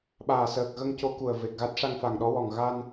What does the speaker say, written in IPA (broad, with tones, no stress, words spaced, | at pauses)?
ɓaː˨˩səː˨˩k̚ɣə˧ŋco˧˥ ku˨˩ə̯ve˨˩k̚ɣa˦˥t̚ ʂa˧ŋfa˨˩ŋɗɔ˧˥wɔ˨˩ŋ ɣa˧n